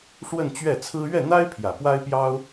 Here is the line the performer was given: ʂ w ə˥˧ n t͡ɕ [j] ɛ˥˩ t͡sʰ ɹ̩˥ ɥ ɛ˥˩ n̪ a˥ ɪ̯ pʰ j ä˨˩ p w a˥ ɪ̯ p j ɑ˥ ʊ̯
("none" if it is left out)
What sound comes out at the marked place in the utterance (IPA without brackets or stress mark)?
ɥ